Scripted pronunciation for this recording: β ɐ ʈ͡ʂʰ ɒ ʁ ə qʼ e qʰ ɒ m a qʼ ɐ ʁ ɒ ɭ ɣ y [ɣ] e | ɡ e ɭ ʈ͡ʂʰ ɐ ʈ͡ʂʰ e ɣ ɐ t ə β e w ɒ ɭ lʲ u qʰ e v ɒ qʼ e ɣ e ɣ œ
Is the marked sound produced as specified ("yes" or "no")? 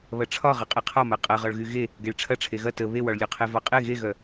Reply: yes